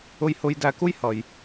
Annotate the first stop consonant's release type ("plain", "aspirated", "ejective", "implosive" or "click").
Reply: plain